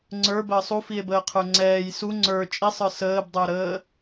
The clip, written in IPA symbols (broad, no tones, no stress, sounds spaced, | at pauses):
ŋ͡ǀ ə˞ b əː sˤ u f i e̯ b əː qʰ ə˞ ŋ͡ǀ ɛː j s u ŋ͡ǀ ə˞ t͡ʃʼ i sˤ ə˞ s əː b dˤ ə˞ ɾ əː